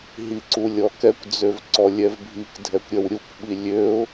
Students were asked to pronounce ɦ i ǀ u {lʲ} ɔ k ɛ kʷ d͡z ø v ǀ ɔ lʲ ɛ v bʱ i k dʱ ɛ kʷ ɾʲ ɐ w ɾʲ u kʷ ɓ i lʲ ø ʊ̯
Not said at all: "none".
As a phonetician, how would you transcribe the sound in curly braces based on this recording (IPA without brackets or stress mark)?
lʲ